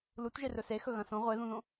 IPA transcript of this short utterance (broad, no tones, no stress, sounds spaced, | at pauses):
l u t ʒ e r ɵ s e x ɵ ɣ ɐ̃ s õ ʁʷ e ð ũ ð õ